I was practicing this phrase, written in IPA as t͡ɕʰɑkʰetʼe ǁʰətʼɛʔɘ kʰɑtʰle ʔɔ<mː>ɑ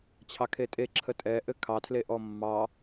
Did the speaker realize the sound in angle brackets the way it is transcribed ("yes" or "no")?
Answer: yes